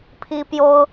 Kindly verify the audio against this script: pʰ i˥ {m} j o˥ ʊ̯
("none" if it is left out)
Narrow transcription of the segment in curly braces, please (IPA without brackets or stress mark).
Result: p